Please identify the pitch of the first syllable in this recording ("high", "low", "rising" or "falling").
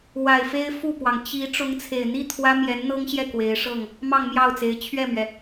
low